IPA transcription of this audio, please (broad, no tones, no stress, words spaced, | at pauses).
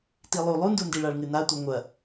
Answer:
tilˠu lˠundundiɭaɭ ŋɨnatʷi ŋʷɐ